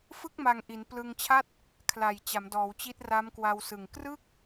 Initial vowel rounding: unrounded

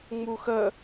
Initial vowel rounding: rounded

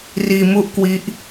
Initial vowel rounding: unrounded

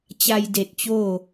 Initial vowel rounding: unrounded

